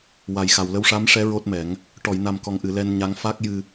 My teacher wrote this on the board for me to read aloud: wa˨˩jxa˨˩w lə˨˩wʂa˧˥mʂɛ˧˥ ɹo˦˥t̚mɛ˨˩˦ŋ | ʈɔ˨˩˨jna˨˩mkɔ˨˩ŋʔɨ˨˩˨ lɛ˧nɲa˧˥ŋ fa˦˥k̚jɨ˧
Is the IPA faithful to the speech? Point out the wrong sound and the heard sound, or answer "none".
ə˨˩ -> ə˧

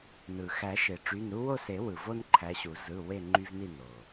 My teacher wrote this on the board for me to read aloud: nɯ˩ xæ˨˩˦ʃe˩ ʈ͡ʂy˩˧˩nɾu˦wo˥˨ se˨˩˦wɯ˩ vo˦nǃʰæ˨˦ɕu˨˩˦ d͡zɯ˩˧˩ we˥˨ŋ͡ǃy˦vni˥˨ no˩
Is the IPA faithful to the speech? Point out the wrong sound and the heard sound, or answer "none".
d͡z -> z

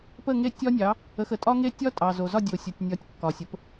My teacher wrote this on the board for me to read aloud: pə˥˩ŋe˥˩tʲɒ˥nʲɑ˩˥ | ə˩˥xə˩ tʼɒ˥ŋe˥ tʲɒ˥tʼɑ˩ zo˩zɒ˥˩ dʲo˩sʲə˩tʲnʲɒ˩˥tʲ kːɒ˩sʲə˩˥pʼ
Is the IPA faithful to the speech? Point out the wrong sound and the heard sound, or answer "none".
pʼ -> p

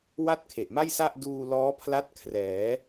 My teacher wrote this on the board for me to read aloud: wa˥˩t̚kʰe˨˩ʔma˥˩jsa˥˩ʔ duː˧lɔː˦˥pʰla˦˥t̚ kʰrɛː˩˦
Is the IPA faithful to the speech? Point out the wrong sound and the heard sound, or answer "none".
none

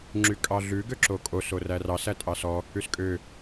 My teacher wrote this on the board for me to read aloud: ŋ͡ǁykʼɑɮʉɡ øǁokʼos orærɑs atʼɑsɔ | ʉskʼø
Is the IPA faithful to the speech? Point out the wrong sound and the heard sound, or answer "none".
a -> æ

